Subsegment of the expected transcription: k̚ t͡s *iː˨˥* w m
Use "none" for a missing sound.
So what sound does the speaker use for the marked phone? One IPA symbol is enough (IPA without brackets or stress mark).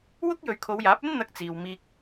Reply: iː˨